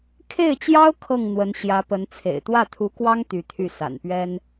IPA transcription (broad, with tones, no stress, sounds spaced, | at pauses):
kʰ e˥˩ ɪ̯ t͡ɕ j ɑ˥ ʊ̯ kʰ ɤ˥˩ ŋ n̪ w ə˧˥ n ɕ j ä˧˥ p ə˧˥ n t͡sʰ ḛ˨˩ ɪ̯ t̪ w ä˥˩ t̪ʰ u˧˥ k w ɑ˥ ŋ t̪ y˧˥ t̪ʰ y˥˩ s a̰˨˩ n p ɥ ɛ˥ n